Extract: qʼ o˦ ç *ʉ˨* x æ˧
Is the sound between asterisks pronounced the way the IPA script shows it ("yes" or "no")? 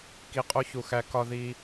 no